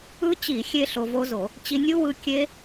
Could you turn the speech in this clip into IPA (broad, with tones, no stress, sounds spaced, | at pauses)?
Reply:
ɯ˦˥ t͡ɕ i˧˩˧ xʲ e˧ ɬ o˧ v o˦˥ z o˧˩˧ | t͡ɕ i˧ nʲ u˦˥ w ɯ˧ kʲ e˦˥